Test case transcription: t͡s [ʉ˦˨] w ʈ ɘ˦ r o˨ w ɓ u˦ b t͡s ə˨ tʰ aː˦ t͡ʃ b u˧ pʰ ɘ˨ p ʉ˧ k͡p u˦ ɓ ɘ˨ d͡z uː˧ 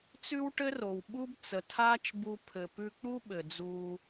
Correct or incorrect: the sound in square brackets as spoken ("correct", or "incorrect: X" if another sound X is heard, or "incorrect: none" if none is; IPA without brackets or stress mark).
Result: incorrect: ʉ˦